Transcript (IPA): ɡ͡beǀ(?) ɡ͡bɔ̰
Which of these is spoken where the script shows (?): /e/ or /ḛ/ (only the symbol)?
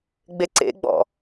ḛ